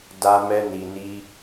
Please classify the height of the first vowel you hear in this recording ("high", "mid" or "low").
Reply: low